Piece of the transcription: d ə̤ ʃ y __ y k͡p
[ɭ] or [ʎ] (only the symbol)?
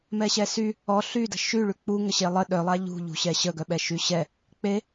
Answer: ɭ